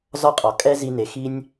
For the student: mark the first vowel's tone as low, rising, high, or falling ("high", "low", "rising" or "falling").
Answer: high